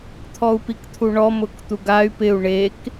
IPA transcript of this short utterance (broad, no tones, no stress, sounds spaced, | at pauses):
t̪ʰ ɔ u̯ p i k t̪ʰ u ɳ ɔ m ʊ k t̪ u ɡ a y̯ p ɪ u̯ ɳ e k